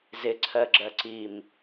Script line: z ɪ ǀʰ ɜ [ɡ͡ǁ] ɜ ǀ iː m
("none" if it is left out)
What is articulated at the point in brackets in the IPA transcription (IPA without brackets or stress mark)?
ɡ͡ǁ